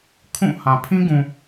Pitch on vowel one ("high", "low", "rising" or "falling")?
falling